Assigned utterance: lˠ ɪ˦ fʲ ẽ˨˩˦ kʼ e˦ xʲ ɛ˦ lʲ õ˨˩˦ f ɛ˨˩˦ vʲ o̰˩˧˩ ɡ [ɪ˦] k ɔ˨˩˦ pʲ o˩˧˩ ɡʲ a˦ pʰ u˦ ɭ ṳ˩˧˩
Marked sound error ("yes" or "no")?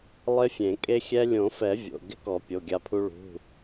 no